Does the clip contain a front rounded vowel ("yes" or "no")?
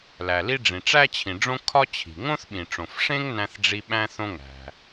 no